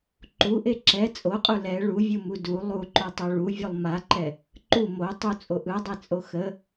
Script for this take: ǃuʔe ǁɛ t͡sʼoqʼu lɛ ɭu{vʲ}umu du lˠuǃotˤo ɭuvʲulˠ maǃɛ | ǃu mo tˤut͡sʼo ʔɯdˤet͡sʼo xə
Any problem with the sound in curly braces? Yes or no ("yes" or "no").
no